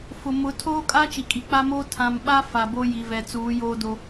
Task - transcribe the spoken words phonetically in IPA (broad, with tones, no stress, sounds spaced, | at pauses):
f ʊ˨ m ʊ˨˦ tʰ oː˦ kʼ a˦ t͡ʃ i˨ kʼ i˨ k͡p a˦ m oː˦ tʰ ã˨ m ɓ a˦ f a˨ b o˦ j i˨ v ɛ˨ t͡s uː˨˦ j oː˦ d o˦